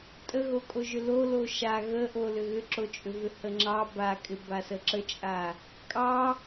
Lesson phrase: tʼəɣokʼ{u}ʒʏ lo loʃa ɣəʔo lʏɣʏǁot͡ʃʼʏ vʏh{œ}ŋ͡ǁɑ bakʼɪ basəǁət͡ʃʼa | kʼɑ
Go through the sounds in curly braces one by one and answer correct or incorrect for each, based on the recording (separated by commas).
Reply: incorrect, incorrect